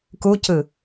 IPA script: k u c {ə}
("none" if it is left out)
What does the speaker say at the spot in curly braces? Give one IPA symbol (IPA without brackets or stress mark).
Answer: ɯ